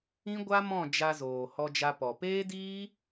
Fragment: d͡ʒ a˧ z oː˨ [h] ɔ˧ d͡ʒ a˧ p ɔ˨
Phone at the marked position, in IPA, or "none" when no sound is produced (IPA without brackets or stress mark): h